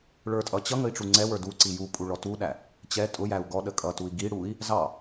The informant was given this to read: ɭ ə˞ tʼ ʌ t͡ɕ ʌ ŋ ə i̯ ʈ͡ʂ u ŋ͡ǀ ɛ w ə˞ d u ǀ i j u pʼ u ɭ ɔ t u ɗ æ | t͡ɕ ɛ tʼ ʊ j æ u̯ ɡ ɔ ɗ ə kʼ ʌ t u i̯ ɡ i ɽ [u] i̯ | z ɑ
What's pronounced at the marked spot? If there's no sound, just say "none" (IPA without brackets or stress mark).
u